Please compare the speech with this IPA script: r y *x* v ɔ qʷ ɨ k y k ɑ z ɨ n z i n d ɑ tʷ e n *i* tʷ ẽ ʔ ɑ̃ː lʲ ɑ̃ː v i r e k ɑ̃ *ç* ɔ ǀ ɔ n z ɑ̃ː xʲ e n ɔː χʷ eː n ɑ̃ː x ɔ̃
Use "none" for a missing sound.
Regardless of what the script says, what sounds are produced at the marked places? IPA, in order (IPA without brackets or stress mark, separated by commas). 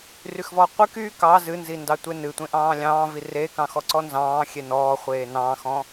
x, ɨ, x